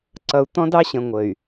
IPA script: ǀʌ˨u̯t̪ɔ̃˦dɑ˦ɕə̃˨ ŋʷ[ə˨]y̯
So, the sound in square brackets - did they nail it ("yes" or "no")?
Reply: yes